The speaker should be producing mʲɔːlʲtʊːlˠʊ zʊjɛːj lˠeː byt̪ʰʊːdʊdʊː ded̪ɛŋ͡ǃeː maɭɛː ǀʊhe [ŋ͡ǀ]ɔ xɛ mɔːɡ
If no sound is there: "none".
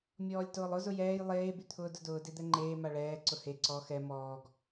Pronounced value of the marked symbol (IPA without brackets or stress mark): ǀ